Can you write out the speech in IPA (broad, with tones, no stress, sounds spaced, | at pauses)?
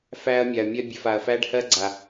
f æ˦ ɐ̯ mʲ a˨ ɐ̯ mʲ ɜ˦ bʲ ɛ˨ f a˨ ɐ̯ f æ˦ ɖ h ɜ˦ ɡ͡ǀ a˨